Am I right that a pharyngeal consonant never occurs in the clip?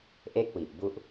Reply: yes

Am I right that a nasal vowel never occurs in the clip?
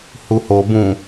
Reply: no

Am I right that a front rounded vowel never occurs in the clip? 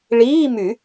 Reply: no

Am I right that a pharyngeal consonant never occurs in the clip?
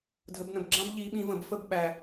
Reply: yes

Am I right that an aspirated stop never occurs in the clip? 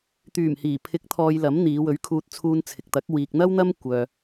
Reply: no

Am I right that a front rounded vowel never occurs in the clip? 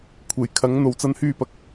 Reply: no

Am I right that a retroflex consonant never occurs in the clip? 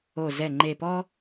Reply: yes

